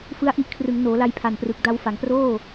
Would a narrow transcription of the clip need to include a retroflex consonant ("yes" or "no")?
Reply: no